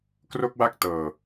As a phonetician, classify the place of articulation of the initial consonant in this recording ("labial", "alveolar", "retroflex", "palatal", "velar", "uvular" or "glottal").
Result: velar